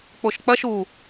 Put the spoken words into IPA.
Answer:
k͡p o ʃ k͡p ɐ ʃ u

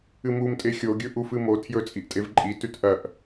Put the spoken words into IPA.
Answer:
ɨ m u m tʼ e xʲ o ɡʲ ɵ ʔ u f ɨ m o tʰ j ɵ t͡sʼ i ʔ tʼ e v ǃʼ i t ʉ t ʔ ɐ ʔ

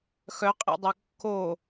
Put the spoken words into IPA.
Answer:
x œ qʼ ḛ dˤ e kː o

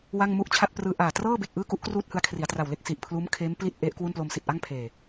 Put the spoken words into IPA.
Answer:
w a˥˩ ŋ m u˥˩ ʔ t͡ɕʰ a˥˩ t̚ p r ɯː˧ ʔ aː˨˩ t r ɤː˥˩ b e˨˩ k̚ ʔ ɯː˥˩ k u˦˥ ʔ k r uː˥˩ t̚ h ɯ˧ a̯ kʰ r i˩˦ a̯ t r a˨˩ w l e˥˩ k̚ s i˨˩ ʔ pʰ l uː˦˥ m kʰ eː˦˥ m p l i˥˩ t̚ ʔ e˦˥ ʔ k w u˥˩ n p l o˧ m s i˨˩ t̚ ʔ a˥˩ ŋ pʰ eː˨˩

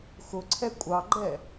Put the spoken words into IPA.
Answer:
x ʊ ǀʰ ɛ kʷʼ ɑ ɡ͡ǃ ɛ

